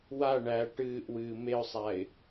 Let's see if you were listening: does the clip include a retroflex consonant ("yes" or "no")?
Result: yes